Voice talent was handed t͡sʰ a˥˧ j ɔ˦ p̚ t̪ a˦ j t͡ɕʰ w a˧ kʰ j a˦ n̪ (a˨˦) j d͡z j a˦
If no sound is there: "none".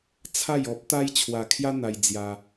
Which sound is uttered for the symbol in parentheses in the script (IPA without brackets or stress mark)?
a˧